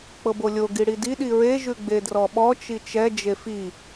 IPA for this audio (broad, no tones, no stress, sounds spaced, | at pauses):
k͡p ɤ b o lʲ o ɡ i ɽ i d i ɗ i ɹ e ʒ ʉ ɡ͡b e d r ɔ ɓ ɔ t͡ʃ i t͡ʃ ɛ d͡ʒ e f i